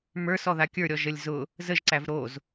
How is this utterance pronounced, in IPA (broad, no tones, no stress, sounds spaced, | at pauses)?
m ə˞ s ɔ ð a kʲ ə˞ ɾʲ ɔ ʒ ə lʲ z ʊ | z ə ʒ ǀ æ v ɾ o z